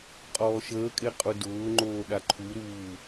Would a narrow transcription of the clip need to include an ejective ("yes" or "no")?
yes